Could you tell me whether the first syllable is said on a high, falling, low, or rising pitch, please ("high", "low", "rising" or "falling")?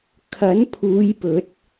rising